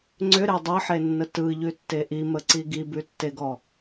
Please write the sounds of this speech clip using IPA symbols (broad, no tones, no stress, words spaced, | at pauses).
ŋ͡ǀʏɾe dˤəħenːə tɯʎʉtːe ʔiməǀi ɡibʉtːeɡɔ